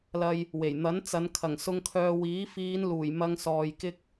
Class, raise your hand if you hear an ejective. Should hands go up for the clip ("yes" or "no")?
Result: no